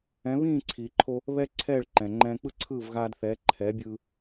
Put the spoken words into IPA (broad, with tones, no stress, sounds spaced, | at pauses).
ɛ̃˩˥ β ĩː˥˩ ǀʰ iː˩ ǃʰ o˧ | β ɛ˥ ǀʰ ɛː˥˩ ɭ ǃ ɛ̃˩ ŋ͡ǃ ɛ̃ː˧ k͡p ɯ˥ ǀʰ ɯː˥˩ v ɣ aː˧ d θ ɛː˩˥ ǃʰ ɛː˩˥ bʲ ɯː˧